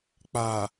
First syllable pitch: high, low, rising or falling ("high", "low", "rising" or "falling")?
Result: low